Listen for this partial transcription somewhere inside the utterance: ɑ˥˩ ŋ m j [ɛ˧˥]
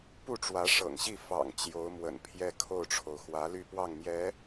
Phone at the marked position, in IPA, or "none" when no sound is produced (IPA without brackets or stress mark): ɛ˧˥